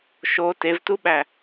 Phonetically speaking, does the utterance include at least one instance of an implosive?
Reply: yes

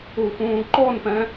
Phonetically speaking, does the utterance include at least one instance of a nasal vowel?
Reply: yes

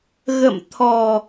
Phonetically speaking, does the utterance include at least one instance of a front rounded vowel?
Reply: no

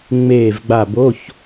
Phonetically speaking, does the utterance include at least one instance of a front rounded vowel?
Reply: no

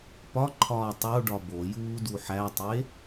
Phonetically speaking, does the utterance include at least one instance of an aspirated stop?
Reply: yes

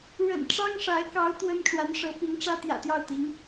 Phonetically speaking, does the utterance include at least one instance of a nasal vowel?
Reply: no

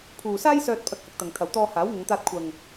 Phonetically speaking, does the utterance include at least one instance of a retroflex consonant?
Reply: no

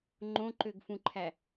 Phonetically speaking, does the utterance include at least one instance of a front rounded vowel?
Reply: yes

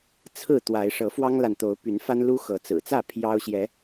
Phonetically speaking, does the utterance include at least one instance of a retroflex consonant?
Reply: yes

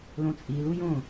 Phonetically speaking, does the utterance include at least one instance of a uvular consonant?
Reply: no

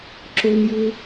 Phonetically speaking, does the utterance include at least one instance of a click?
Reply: yes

